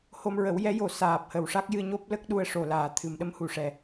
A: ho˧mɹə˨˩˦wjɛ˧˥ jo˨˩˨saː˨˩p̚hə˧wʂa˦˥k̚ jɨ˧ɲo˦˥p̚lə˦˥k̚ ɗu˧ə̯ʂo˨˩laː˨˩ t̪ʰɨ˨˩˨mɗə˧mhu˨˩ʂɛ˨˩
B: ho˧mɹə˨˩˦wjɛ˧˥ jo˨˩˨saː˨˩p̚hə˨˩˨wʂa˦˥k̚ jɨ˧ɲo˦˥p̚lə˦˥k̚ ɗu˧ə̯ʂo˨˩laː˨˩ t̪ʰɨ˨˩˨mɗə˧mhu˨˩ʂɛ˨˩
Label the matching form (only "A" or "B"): B